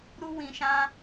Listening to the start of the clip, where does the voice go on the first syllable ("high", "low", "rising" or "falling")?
high